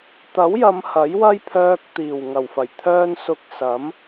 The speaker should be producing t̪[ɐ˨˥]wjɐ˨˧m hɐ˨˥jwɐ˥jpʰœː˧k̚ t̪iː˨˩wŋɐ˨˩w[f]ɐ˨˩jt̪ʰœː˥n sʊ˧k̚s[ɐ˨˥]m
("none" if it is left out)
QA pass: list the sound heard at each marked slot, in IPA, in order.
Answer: ɐ˨˥, f, ɐ˨˥

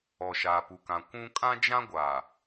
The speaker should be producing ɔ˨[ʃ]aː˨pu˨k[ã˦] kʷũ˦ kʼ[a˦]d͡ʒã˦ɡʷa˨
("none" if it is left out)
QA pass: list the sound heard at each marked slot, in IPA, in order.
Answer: ʃ, ã˨, ã˦

